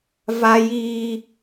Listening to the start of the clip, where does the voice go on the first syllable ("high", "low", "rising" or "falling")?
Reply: high